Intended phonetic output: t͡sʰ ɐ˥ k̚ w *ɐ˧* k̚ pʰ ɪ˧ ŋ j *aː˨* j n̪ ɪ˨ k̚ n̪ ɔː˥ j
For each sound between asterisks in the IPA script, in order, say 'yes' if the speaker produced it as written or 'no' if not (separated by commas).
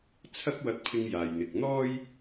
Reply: yes, yes